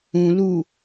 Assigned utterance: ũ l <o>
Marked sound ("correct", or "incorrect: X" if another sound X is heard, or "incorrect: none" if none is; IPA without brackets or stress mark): incorrect: u